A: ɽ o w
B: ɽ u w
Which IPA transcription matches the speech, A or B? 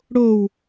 A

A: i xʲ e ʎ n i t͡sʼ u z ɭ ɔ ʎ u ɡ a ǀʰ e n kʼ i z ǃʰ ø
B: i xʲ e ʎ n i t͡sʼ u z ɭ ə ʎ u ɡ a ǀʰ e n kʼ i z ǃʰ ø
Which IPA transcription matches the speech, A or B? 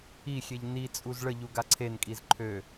B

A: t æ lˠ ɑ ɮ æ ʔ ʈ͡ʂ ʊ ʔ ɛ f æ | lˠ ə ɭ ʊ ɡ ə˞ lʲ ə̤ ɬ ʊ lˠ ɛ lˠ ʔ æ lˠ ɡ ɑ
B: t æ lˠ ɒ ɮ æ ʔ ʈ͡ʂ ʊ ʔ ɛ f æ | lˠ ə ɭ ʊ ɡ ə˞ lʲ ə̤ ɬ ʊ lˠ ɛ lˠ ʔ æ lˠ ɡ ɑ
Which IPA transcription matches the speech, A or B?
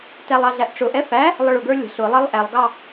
A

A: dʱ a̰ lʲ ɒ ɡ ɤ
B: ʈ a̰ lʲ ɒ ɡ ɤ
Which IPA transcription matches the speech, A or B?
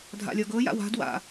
A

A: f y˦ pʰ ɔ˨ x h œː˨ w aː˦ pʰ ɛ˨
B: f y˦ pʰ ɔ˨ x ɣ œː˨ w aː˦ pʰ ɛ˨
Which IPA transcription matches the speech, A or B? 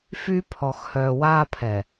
A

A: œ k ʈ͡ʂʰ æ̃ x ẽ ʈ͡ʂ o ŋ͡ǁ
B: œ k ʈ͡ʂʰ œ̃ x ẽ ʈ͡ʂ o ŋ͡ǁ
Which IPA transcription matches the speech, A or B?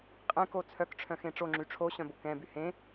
B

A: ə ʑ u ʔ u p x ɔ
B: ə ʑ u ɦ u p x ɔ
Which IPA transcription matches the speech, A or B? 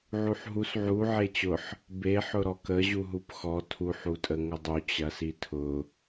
B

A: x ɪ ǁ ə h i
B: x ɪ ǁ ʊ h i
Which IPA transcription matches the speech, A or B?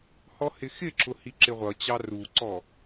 B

